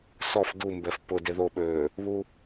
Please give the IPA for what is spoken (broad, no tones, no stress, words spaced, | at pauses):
sɔf dumbɛf pʊ deðoɓøː | βu